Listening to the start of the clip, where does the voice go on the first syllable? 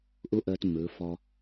high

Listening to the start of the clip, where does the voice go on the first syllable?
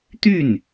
falling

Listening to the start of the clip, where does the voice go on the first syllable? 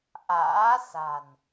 rising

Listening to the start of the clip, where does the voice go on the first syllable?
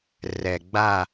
low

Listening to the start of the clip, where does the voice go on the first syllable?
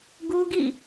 high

